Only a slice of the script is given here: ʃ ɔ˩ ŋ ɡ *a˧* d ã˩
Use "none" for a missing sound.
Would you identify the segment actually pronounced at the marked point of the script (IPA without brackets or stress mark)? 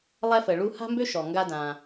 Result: a˧